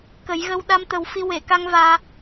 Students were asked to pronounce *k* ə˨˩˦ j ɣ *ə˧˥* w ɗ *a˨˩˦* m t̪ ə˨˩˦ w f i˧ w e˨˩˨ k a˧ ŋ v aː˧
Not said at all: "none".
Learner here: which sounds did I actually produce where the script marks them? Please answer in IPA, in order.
k, ə˧, a˧

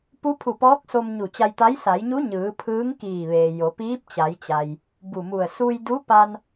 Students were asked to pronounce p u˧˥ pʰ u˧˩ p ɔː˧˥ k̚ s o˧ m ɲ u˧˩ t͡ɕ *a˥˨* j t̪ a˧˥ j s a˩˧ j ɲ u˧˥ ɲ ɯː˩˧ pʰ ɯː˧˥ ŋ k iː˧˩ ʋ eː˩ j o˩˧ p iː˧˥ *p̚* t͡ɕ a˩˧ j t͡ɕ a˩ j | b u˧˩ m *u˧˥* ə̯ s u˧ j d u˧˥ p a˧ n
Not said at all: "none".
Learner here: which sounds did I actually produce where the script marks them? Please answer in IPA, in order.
a˧, p̚, u˧˩

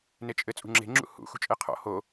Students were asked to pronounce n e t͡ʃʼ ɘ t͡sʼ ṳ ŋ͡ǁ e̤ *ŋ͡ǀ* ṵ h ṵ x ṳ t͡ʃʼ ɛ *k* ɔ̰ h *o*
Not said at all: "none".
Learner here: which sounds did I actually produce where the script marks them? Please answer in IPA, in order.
ŋ͡ǁ, qʰ, o

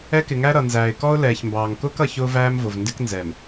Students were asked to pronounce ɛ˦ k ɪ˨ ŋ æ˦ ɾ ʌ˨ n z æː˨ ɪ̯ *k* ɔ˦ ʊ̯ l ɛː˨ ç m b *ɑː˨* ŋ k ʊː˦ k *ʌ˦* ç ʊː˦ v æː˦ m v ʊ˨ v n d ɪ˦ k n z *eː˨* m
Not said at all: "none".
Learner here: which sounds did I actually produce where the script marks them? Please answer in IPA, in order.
k, ɑː˨, ʌ˨, ɛː˨

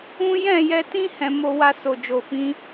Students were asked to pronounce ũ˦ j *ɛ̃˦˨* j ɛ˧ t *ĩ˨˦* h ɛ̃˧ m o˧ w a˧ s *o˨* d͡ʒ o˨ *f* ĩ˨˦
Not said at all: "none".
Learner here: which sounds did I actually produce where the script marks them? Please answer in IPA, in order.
ɛ̃˦˨, ĩ˦, o˨, f

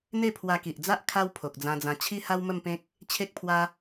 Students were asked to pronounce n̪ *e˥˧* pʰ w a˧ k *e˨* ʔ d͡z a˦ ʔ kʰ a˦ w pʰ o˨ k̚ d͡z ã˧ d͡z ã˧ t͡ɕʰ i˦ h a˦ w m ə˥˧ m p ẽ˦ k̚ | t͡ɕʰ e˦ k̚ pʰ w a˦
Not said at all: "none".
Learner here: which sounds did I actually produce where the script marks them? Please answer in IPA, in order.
e˥˧, i˨

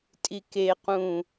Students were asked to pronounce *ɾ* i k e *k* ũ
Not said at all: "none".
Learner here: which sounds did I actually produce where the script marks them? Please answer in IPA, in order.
tʼ, q

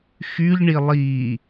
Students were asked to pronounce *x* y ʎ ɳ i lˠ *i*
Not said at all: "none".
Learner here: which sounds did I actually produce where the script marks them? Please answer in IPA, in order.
x, i

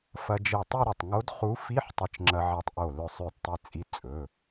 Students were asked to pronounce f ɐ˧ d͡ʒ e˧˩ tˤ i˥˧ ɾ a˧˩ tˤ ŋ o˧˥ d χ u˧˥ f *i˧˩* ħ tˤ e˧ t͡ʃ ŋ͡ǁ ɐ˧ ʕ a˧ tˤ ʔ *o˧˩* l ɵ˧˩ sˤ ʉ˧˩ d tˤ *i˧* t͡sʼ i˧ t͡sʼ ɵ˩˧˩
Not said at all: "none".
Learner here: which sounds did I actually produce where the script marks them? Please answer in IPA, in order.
i˧˥˧, o˧˩, i˧

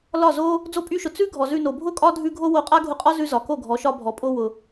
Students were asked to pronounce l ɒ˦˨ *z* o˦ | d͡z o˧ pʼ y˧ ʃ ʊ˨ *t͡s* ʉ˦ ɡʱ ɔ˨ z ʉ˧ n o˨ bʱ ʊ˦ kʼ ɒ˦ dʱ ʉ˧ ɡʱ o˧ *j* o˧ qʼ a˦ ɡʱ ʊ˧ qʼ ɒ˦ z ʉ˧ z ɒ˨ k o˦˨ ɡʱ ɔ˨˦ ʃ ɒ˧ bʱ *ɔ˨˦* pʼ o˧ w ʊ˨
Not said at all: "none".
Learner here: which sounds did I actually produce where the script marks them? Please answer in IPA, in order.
z, t͡s, w, ɔ˨

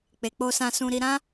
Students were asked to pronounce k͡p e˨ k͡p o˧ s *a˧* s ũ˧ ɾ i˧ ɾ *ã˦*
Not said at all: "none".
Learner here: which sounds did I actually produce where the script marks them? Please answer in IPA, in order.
ã˧, ã˦

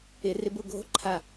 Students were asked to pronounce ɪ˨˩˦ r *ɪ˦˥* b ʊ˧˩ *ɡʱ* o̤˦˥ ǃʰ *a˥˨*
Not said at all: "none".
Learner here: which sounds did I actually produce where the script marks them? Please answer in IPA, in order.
ɪ˨˥, ɡʱ, a˧˩

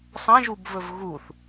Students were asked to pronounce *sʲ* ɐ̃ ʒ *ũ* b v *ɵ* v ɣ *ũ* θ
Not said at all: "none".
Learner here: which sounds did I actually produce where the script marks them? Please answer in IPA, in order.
sˤ, u, ɵ, u

